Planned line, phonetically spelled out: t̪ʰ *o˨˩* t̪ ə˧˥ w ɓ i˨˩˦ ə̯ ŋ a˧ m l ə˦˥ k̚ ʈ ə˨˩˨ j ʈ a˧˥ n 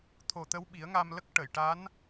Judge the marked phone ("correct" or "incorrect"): correct